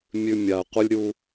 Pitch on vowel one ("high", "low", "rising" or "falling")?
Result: high